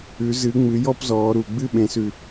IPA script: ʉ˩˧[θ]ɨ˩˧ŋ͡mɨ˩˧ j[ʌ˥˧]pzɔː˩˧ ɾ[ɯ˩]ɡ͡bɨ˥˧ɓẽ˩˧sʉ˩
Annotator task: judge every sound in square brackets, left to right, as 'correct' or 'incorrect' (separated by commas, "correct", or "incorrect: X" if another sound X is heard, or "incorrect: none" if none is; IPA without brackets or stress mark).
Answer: incorrect: z, incorrect: ɔ˥˧, incorrect: u˩